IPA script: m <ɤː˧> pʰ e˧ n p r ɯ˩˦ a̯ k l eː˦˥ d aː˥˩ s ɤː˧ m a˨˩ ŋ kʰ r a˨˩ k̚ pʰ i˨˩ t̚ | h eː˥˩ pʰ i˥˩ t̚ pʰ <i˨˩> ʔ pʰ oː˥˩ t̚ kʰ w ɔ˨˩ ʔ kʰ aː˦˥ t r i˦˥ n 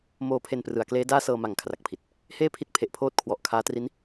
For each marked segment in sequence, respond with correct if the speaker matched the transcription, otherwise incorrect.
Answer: incorrect: oː˧, incorrect: e˨˩

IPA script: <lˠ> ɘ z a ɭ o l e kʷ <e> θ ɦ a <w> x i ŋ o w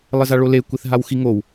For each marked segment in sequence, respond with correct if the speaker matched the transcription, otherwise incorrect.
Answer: correct, incorrect: i, correct

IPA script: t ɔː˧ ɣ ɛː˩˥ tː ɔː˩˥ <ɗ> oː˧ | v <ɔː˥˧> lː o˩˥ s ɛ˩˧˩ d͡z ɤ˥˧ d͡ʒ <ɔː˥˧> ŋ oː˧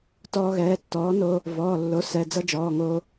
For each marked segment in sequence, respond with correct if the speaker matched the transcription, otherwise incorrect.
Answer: incorrect: n, incorrect: ɔː˩˧˩, incorrect: ɔː˩˧˩

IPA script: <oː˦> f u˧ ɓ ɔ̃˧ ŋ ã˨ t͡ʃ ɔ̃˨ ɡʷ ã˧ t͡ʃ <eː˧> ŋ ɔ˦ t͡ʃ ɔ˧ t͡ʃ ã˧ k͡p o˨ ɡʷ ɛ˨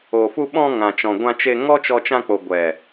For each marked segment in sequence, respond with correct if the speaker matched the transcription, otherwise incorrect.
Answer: incorrect: oː˨, incorrect: e˧

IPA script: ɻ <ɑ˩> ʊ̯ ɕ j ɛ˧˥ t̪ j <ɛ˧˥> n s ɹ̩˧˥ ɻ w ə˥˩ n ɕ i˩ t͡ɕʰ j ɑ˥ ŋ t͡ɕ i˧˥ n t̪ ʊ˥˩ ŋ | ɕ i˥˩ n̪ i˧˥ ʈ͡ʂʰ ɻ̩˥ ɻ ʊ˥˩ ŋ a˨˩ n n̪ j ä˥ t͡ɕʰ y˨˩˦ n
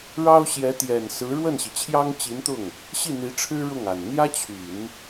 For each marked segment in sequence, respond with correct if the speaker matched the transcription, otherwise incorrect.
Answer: incorrect: ɑ˥, incorrect: ɛ˨˩

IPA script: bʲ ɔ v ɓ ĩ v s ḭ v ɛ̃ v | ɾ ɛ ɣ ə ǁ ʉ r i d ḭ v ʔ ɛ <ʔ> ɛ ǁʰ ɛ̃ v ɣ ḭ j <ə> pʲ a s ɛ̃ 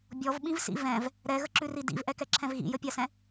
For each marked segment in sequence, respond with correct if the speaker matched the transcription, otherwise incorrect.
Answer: incorrect: k, correct

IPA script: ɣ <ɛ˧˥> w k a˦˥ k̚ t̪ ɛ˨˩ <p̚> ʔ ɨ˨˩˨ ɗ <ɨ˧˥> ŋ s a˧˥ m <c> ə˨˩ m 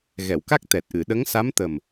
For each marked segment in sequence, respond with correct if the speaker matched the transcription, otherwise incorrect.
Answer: incorrect: ɛ˨˩˨, incorrect: t̚, incorrect: ə˧˥, incorrect: t̪

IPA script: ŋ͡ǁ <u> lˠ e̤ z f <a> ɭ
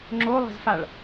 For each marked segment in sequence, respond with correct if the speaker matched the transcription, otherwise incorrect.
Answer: incorrect: o, correct

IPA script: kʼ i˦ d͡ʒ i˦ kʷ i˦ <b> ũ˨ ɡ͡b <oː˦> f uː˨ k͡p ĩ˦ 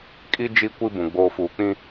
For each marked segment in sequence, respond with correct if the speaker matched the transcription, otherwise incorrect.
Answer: correct, incorrect: oː˨

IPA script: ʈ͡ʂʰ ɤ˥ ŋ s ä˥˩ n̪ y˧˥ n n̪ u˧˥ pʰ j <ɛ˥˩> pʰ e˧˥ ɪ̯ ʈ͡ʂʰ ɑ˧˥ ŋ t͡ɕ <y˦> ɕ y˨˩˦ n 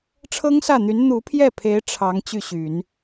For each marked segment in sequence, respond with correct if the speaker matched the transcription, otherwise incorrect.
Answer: correct, incorrect: y˥˩

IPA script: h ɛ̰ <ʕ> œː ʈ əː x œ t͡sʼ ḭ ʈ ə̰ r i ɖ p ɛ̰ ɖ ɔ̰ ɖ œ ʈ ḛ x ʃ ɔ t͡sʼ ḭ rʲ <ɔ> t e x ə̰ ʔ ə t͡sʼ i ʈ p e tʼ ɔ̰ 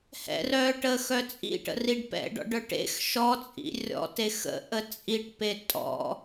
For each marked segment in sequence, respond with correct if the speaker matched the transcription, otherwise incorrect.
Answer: incorrect: r, incorrect: ɔ̰

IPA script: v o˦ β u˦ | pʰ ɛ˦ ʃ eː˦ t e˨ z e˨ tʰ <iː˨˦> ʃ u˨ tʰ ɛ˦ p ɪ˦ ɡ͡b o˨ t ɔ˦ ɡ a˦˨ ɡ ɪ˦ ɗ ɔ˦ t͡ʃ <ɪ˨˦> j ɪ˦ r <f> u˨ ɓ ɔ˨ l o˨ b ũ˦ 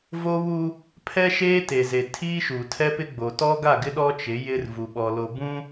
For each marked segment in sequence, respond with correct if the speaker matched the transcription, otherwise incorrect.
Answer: incorrect: iː˦, correct, incorrect: v

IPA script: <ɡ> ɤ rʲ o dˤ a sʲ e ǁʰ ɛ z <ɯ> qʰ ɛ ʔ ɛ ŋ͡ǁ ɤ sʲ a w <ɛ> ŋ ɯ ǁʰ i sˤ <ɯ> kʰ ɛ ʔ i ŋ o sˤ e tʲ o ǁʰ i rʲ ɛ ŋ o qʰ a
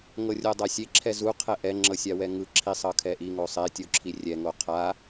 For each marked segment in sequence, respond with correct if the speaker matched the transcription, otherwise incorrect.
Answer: incorrect: ŋ, incorrect: u, correct, incorrect: ɤ

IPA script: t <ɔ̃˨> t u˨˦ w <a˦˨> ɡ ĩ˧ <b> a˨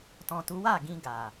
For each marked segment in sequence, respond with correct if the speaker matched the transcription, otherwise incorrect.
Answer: correct, correct, incorrect: ɡ

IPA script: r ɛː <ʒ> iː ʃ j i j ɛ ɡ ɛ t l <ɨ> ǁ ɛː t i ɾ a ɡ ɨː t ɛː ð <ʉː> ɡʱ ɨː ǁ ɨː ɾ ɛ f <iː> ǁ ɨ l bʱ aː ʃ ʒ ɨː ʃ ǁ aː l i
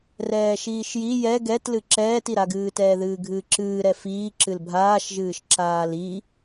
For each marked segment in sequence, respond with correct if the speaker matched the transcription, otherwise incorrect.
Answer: incorrect: ʃ, correct, incorrect: ɨː, correct

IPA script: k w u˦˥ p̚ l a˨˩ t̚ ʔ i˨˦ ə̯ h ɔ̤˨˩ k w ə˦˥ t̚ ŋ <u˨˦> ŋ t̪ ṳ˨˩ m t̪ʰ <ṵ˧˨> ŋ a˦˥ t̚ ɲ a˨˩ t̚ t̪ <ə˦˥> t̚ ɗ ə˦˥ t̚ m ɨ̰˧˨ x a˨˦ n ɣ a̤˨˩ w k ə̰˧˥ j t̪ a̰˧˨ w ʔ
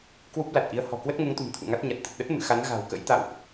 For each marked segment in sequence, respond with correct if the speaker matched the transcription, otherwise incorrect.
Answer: correct, correct, incorrect: ə˨˩

